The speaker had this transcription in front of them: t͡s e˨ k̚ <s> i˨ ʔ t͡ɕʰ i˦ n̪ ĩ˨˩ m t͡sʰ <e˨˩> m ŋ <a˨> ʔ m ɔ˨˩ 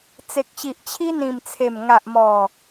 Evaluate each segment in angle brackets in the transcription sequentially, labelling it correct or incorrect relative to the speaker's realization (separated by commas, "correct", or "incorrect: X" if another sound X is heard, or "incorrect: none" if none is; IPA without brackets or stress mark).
incorrect: ɕ, correct, correct